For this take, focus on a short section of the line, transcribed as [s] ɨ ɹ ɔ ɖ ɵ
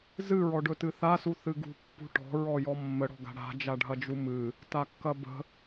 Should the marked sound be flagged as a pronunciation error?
yes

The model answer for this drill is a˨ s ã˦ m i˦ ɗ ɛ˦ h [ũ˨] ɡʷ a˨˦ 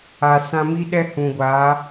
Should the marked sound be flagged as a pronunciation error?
no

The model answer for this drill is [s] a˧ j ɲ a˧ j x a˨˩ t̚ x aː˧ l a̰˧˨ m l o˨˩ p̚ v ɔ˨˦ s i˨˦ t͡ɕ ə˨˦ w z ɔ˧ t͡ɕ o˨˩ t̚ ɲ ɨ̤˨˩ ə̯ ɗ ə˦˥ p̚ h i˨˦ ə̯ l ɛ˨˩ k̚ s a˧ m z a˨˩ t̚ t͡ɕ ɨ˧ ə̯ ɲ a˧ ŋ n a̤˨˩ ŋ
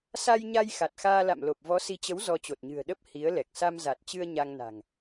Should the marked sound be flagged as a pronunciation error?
no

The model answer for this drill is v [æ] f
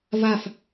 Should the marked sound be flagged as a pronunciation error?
yes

